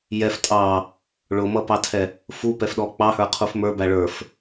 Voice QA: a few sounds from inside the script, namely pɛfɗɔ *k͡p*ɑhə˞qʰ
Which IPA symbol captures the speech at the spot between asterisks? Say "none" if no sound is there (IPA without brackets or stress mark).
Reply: k͡p